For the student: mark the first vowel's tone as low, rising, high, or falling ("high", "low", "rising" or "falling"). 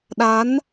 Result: rising